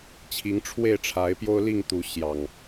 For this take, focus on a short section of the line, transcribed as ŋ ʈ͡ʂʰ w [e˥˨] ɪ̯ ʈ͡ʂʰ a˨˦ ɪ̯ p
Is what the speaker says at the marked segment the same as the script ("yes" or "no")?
yes